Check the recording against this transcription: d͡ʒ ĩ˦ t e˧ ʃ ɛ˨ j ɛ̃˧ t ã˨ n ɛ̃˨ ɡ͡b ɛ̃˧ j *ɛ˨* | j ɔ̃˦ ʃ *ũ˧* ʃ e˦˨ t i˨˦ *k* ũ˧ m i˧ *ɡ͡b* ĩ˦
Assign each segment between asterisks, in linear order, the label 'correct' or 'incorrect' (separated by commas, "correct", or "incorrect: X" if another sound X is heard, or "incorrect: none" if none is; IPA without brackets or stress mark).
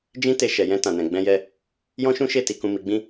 incorrect: ɛ˧, incorrect: ũ˦, correct, correct